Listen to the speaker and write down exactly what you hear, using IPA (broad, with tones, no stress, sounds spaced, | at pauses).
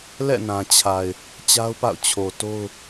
l ɛ̰˦˨ n ã˨ t͡ɕʰ a˨ ɪ̯ | t͡ɕ a˦ ʊ̯ p a̰˦˨ ʊ̯ t͡ɕʰ o˨ t o˦ ʊ̯